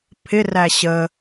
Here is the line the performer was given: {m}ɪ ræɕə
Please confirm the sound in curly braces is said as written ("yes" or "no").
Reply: no